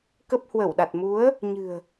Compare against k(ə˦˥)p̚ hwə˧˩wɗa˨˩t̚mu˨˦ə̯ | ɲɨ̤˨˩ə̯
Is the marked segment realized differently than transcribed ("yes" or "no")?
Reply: no